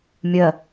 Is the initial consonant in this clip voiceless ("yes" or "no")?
no